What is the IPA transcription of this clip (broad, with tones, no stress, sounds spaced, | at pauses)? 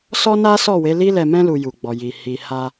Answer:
s ɔ˦ n a˦ s ɔ˦˨ w e˨˦ l i˦ l ɛ˧ m ɛ̃˦ l u˧ j u˨ ɡ͡b ɔ˨ j i˨ h i˨ h a˧